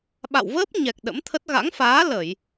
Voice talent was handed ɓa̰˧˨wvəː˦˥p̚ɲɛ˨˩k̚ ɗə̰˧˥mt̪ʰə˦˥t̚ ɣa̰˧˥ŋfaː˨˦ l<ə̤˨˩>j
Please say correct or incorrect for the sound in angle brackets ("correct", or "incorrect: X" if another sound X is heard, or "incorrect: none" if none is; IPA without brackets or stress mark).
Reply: incorrect: ə˧˩˨